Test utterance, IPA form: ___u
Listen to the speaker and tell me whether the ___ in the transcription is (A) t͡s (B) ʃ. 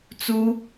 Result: A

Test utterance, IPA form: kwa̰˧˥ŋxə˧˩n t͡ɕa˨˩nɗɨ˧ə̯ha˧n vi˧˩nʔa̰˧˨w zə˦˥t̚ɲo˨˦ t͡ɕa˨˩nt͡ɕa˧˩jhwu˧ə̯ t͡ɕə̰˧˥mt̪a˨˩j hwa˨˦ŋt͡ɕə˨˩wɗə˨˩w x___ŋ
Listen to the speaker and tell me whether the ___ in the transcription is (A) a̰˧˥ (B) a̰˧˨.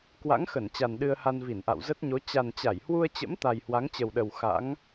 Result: A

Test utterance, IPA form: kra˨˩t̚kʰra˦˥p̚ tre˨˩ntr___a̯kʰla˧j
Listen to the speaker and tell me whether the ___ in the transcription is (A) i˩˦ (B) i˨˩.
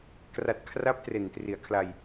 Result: A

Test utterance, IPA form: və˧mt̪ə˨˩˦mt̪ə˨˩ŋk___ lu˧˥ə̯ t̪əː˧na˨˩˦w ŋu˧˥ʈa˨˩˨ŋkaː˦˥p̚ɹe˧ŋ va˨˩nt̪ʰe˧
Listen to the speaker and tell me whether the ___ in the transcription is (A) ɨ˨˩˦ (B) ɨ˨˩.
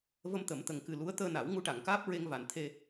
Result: B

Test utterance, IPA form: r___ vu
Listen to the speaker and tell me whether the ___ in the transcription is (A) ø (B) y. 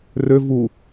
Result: A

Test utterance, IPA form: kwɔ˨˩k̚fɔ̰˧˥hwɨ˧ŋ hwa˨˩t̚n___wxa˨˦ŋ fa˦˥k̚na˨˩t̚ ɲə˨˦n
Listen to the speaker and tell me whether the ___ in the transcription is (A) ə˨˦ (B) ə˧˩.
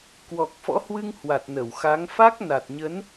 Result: B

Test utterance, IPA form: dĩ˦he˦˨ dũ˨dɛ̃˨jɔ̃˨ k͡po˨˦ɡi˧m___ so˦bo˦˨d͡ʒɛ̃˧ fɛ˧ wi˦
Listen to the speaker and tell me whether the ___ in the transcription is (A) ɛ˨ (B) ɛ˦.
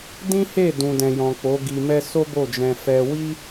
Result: B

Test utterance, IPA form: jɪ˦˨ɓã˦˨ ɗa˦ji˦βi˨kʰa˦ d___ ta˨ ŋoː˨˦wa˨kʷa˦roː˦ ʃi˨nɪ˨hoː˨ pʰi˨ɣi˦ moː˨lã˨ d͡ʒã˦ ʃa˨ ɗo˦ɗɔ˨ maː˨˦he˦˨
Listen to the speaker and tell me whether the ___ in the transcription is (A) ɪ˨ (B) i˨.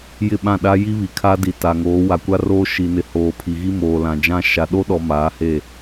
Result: B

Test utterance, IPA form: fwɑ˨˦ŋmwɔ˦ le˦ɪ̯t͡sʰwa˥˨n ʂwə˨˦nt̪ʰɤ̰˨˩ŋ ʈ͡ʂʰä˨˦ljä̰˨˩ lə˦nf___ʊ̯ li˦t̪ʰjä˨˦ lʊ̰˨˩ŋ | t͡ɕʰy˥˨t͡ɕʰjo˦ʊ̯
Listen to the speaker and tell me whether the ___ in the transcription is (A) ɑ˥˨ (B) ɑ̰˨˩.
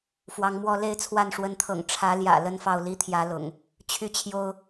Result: A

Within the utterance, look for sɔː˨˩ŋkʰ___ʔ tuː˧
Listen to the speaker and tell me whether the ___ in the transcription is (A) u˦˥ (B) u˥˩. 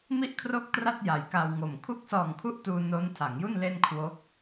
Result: A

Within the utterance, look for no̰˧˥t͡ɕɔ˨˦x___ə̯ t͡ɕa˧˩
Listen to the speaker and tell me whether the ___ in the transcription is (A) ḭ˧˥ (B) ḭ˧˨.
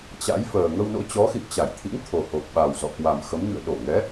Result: B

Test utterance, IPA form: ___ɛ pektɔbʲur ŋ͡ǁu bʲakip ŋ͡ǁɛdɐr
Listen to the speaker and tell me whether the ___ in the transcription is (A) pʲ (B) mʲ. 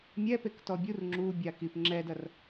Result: B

